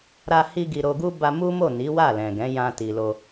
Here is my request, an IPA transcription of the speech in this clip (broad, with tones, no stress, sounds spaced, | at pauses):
ɾ a˧ h i˧ ɡ i˨ ɾ o˧ ɡ u˦ b a˧ m u˦ m o˦˨ n i˨˦ w a˦˨ l ɛ̃˨ ɡ ɛ̃˨˦ j ã˧ t i˨ l o˧